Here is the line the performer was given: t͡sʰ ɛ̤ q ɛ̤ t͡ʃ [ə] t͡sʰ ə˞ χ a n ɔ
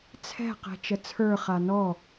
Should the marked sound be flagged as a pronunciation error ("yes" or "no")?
no